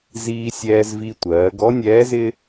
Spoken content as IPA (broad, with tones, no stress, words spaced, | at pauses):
ziː˧sʲɛː˧zvi˧tʷɜː˩˧ ɡɔ˧˥nʲɛː˧˥zɪ˥